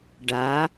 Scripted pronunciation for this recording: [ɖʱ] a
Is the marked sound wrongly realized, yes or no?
yes